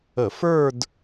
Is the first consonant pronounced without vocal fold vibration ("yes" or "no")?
yes